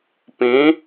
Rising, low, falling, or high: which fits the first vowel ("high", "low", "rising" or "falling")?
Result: rising